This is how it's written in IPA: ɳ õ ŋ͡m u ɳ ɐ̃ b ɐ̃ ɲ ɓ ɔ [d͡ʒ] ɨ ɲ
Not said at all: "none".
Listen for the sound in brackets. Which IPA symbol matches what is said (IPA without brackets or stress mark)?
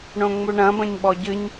ɟ